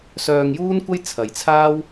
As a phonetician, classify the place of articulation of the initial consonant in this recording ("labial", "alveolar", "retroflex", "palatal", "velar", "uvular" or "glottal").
alveolar